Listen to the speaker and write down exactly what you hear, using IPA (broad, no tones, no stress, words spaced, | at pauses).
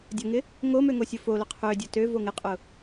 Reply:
dʲɐŋɪ | ŋomø ŋosʲʊfolʊ qʰødʲʊ tø voŋɪqʼʊ